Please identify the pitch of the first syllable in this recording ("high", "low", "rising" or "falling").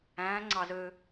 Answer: rising